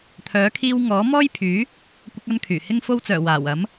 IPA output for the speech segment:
t̪ʰ œː˨˥ kʰ iː˧ w ŋ ɔː˨˥ m ɔː˥ j pʰ yː˨˥ | kʷ ɐ˧ k̚ ɐ˧ n kʰ yː˨˩ h ɪ˧ ŋ f o˧ w t͡s œː˨˩ w aː˨˩ w ɐ˨˥ m

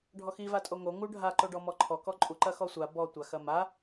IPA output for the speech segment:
ɖʱ ɔ x i v a tʼ o ŋ o ŋ u ɖʱ a ǃ o ɖ ɔ m ɔ ǃʰ ɔ k ɔ ǃʼ u ǃ ɐ x ɔ sʷ a b ɔ tʷ a x ɐ m a

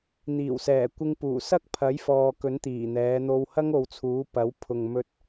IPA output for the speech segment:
n̪ iː˨˩ w s ɛː˨˩ kʷ ɪ˧ ŋ p uː˨˩ s ɐ˥ k̚ pʰ ɐ˨˥ j f ɔː˨ k ɵ˨˥ n t̪ iː˨˩ n̪ ɛː˨˧ n̪ o˧ w h ɐ˥ ŋ o˨ w t͡sʰ uː˨˥ p ɐ˨˥ w pʰ ʊ˨ ŋ m ɵ˧ t̚

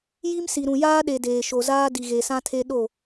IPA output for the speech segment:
j i˦ m s i˨ ɾ ũ˨ j aː˦ ɗ e˨ d eː˨ ʃ o˨ z aː˦ d i˨ ɣ e˨ s ã˦ tʰ e˦ ɗ o˦˨

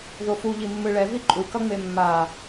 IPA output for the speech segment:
ð o f u ʎ i mː ɯ ɭ ɛ v i ǃʼ u k ʌ ŋ͡m e mː a

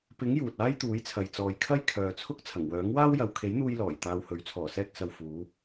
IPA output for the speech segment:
p ɪ˨˥ ŋ j uː˨ t̚ aː˥ j t̪ uː˨˥ j t͡sʰ ɐ˨ j t͡s ɔː˨ j kʰ ɐ˥ j kʰ œː˨ t͡sʰ ʊ˥ k̚ t͡sʰ ɐ˨˩ ŋ w œː˨˥ ŋ w aː˥ w j ɐ˨ w kʰ e˨˥ j n̪ uː˧ j l ɔː˨˩ j t̪ aː˧ w h ɵ˨˥ ɥ t͡sʰ ɔː˨˩ s ɛː˧ k̚ s ɐ˨ w f uː˨˧

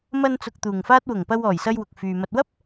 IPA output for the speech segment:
m ɐ˧ n t͡s ʊ˨ k̚ t̪ uː˨˩ ŋ f aː˥ t̚ w ʊ˨˩ ŋ p ɐ˧ w ɔː˨˩ j s ɐ˧ j w ʊ˨ k̚ f yː˨ m ɐ˧ t̚ w ɐ˥ p̚

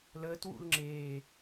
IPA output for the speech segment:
l əː t w ṵ l ŋ͡ǁ eː

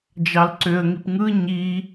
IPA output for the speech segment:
d͡ʒ ɑ l ǀ ø ə̯ ŋ i p ŋ ɯ ɲ i

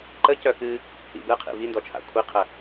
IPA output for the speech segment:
ǃ ə c œ k ɨ | ḭ b ɯ qʰ ḭ v i n d ɔ t͡ʃʰ a̰ kʷʰ i qʰ ə

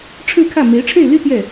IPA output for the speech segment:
ʈ͡ʂʰ ɻ̩˥˧ kʰ ä˥˩ m e˧˥ ɪ̯ ʈ͡ʂʰ e˥˩ ɪ̯ l y˥ t̪ j ɛ˥˩

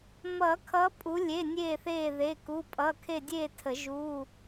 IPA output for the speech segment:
m ʌː˨˩˦ kʰ ʌː˨˦ pʼ u˨˦ lʲ e˩˧˩ nʲ eː˦˨ θ eː˦˨ ð e˩˧˩ k u˩˧˩ pʼ ʌː˩˧˩ kʰ e˦˨ dʲ eː˦˨ tʰ ə˨˩˦ ʒ uː˧˥˧

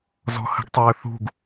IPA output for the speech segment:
z ɔ̤ h ə̤ ɡ tˤ ɵː θ ṳ ɡ

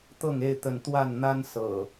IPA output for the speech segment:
t̪ ɤ˥˨ ŋ e˥˨ ɪ̯ t̪ ə˥˨ n t̪ w a˥˨ n n̪ a˦ n s ɤ̰˨˩

